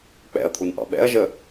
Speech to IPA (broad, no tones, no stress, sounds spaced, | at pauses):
k͡p ɛ̰ ɐ̯ t̪ʰ u n ʔ ɑ̰ ɓ ɛ̰ ɐ̯ ʒ ə